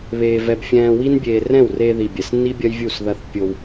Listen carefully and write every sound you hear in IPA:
β eː˧ v ɛ˧ b fʲ ɛ̃ː˧ w i˦ n bʲ eː˧ r ɛ̃˦˨ w r e˧ ð i˨ bʲ ɛ˨ s nː i˦ bʲ ɐ˦ j vʲ u˦˨ s ð ɐ˦ θ pʲ o˧ w

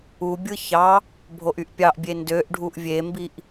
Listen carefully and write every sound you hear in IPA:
u bʲ ɯ ç ɑ | bʱ o ʔ y ʔ pʲ ɑ ʔ bʲ e n d ø ʔ ɖʱ u ʔ vʲ e m b i ʔ

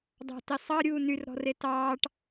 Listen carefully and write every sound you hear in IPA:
dˤ ɑ̤ t e sˤ ɑ ɾʲ uː n y r ɾ ɔ̤ r e t ɑː ʈ

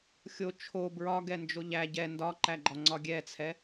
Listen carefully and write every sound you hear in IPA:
xʲ o t͡ʃʰ o b ɹ ɒ ɡ ɛ n d͡ʒ o ʎ æ ɟ ɛ n d ɒ ǃ æ ɡ͡ǃ ɒ ŋ͡ǀ ɒ ɡʲ ɛ t͡sʰ ɛ

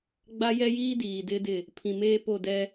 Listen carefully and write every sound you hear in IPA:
ɡ͡b a˦ j ɛ˦ j iː˦ d iː˨ d ɪ˦ d ɪ˦˨ | pʰ ĩ˨ m eː˦ p o˦˨ d ɛ˦

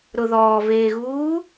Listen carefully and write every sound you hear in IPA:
ɾ ʊ ð ɔː v eː ɣ uː

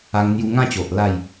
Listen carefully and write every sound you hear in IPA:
a˧ ŋ n̪ j u˧ ŋ ã˥˧ t͡ɕ o˨ ʔ l a˥˧ j

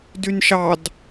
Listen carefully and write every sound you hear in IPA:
d y n ʃ ɑ d

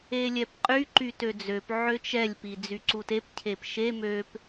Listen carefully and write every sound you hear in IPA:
e lʲ ɛ p qʼ y ǃ y t ø d͡z ø p ʕ ø t͡ʃ ɛ lʲ p i d͡z y ǀ u t e p cʰ e p ʃ e m ø p

